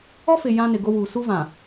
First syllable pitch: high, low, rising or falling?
high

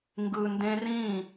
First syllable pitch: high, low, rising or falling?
low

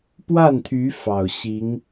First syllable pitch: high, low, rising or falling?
falling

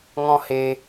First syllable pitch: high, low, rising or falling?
high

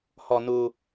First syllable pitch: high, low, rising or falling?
low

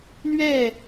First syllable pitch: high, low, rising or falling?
falling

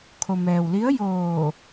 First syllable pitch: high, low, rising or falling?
low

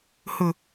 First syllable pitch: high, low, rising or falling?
low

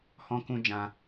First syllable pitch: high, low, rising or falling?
high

